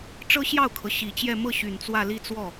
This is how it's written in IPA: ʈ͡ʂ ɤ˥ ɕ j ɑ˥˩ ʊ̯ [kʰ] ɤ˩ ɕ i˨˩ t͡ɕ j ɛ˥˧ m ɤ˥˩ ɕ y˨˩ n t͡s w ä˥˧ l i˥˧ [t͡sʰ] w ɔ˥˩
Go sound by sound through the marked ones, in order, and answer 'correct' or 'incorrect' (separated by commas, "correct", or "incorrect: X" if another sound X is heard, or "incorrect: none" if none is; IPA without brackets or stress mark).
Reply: correct, incorrect: t͡s